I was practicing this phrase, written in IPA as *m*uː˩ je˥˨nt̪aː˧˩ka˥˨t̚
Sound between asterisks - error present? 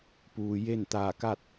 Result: yes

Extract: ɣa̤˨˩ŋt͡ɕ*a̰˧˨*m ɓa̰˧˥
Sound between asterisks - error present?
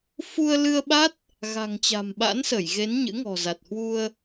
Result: yes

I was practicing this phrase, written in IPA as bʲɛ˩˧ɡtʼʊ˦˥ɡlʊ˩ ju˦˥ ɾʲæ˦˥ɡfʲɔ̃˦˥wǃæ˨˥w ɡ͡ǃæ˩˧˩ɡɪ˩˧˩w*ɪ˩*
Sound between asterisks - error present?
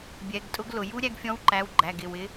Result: yes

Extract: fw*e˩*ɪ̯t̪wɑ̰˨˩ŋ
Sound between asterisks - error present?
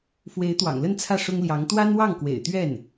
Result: yes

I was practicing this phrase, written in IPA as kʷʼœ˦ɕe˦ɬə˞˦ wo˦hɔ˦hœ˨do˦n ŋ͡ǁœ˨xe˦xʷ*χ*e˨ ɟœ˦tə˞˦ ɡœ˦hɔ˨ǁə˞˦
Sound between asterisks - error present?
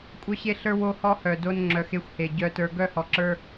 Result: yes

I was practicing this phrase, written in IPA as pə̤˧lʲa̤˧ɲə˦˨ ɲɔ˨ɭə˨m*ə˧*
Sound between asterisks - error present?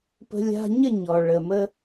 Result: no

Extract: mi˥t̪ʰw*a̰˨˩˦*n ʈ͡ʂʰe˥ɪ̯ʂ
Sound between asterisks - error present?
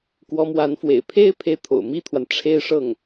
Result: yes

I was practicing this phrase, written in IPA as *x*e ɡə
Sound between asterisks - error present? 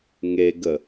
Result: yes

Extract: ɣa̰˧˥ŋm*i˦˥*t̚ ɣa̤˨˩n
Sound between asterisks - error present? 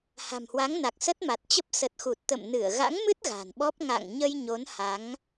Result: yes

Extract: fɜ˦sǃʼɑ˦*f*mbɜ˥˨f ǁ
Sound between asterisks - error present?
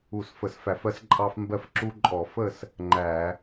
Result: no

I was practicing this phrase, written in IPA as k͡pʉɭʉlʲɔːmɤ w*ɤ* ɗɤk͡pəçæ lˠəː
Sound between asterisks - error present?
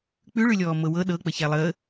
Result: no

